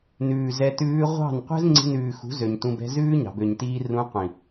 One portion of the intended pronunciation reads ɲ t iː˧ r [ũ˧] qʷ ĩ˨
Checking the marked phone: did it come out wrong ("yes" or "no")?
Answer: no